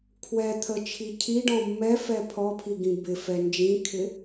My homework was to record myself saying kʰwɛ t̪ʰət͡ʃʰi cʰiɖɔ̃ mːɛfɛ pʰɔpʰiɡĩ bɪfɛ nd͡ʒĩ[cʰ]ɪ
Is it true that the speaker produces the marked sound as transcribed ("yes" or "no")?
no